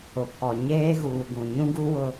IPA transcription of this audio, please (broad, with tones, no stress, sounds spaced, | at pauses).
ʊ˨ pʰ ɔ˨ ɲ eː˦ ɣ uː˨ ɡ ũ˨ ɲ ũ˦ ɡ u˦ w ʊ˦